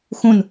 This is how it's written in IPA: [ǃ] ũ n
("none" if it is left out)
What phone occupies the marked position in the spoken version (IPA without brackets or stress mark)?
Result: x